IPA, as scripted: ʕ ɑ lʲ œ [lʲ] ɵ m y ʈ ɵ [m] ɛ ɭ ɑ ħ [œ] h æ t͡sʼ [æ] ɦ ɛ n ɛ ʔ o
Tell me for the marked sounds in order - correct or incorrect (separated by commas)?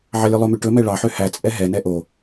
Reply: incorrect, correct, incorrect, incorrect